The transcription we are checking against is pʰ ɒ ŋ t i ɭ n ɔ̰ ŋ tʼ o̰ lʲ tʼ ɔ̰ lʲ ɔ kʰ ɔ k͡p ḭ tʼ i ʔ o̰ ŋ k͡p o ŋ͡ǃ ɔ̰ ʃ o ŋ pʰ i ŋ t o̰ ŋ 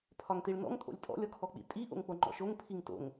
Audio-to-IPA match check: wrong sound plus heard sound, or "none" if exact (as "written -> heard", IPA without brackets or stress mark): none